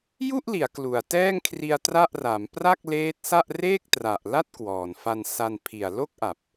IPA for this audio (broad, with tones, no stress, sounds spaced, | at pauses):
j u˥˩ ʔ l i˩˦ a̯ k l u˨˩ a̯ t ɛː˥˩ ŋ kʰ r i˧ a̯ t r a˥˩ ʔ r a˩˦ m p r a˥˩ k̚ l eː˦˥ t̚ s a˥˩ ʔ r eː˥˩ k̚ t r a˨˩ ʔ l a˥˩ t̚ k w ɔː˨˩ n f a˧ n s a˧ n pʰ i˨˩ a̯ l o˥˩ k̚ ʔ a˨˩ p̚